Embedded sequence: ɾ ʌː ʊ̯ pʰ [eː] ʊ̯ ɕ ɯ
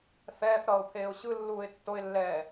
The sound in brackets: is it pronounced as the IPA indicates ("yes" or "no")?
yes